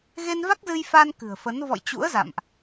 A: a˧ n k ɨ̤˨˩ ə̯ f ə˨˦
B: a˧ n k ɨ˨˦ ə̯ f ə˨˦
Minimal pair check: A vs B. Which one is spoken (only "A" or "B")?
A